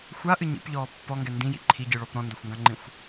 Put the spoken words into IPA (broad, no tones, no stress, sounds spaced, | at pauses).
xʷ a ʔ ɨ ɲ ḭ p ʎ ɔː pː ɔ ŋ ɡ ɛ n d ĩ j ḭ ǃʰ i ɟ ɨ ɭ ɔ p ɾ ɔ̃ n d ɔ xʷ ŋ ɡ ã ŋ͡ǃ ĩ xʷ